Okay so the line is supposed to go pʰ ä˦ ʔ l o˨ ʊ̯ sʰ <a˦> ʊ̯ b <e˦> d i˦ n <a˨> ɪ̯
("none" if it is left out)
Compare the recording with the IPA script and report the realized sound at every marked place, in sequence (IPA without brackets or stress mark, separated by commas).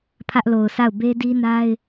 a˦˨, e˦, a˦